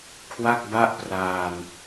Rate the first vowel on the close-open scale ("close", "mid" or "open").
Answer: open